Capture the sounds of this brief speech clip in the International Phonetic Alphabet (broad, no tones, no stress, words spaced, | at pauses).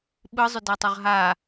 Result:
ɓɯzˤʏdɛtˤʏʁ ɦa